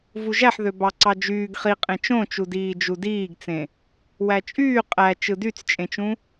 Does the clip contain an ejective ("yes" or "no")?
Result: yes